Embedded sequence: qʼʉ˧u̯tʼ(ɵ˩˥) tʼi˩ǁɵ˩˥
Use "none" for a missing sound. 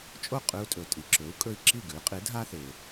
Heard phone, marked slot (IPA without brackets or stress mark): ɵ˩